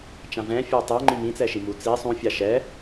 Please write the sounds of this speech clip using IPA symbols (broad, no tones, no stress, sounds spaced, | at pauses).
t͡ʃ ã v ɛ̃ fʲ ɜ tˤ ɜ ŋ͡ǃ ĩ m ĩ t͡s ɛ ʃ i m u t͡s i sˤ ũ fʲ a ʃ ɛ